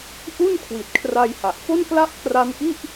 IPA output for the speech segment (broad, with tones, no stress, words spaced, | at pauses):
ʔu˥˩n kʰwi˨˩t̚kʰra˧jha˨˩ʔ fo˥˩nkla˥˩ʔkra˦˥nʔi˥˩ʔ